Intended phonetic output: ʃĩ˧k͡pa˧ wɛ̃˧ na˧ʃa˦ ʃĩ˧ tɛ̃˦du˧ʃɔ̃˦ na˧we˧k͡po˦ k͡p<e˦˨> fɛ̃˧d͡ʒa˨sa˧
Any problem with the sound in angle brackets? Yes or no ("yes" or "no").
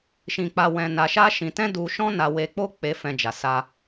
yes